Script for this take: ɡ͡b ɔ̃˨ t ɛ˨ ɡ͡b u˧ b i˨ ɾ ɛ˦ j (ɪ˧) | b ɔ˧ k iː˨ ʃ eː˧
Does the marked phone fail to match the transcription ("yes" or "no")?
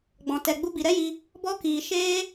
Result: yes